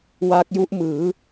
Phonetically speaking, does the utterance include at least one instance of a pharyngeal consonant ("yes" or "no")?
no